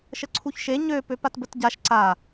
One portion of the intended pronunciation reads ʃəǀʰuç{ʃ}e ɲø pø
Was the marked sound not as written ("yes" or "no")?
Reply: no